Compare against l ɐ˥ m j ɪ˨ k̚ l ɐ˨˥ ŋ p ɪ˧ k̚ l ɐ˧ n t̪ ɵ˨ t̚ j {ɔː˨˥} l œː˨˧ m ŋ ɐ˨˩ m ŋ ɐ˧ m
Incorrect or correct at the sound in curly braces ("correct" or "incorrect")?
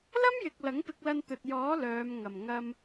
correct